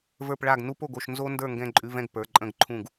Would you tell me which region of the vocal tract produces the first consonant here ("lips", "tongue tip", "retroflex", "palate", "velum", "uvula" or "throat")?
lips